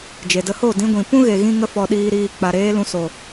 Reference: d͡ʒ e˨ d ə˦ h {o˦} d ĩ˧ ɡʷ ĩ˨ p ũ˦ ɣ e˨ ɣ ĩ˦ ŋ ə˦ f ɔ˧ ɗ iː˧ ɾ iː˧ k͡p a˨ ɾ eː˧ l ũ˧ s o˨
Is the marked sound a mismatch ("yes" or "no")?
yes